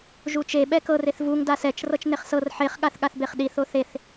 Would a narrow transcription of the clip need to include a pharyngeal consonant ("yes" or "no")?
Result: yes